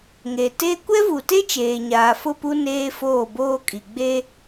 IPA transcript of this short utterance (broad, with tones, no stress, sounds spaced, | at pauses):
ŋ e˨ t e˦ kʷ ɛ˦ v u˨ t e˦ t͡ʃ eː˨ ɲ aː˨ f ʊ˦˨ p u˦ n eː˦ f oː˦˨ b oː˦ kʼ i˨ ɡ͡b e˦